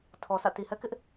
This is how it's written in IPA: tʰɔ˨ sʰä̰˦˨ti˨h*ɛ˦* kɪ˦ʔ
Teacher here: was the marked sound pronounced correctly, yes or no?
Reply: yes